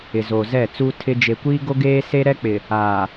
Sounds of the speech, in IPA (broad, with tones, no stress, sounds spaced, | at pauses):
ɪ˨ z o˨ z ɛ˦˨ t͡s uː˦ tʰ ɪ˦ d͡ʒ e˨ kʷ iː˦ ɡ o˦ ɡ eː˦ s e˦ ɾ ɛ˦ k͡p ɪ˨ | aː˨